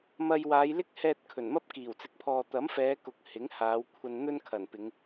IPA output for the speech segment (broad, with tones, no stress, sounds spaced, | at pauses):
m ɐ˧ j w aː˨˧ j l ɪ˥ k̚ h ɛː˨ t̚ kʰ ɵ˨˩ n m ɐ˥ p̚ k iː˨˩ w t͡s ɪ˨˥ k̚ pʰ ɔː˨ t̪ ɐ˨˥ m f ɛː˨˧ k ʊ˨ k̚ h ɪ˨˥ ŋ h aː˨˧ w kʷʰ ɐ˧ n n̪ ɵ˥ n kʰ ɐ˨˩ n p ɪ˨˧ ŋ